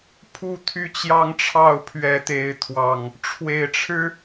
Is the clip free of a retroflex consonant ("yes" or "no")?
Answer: no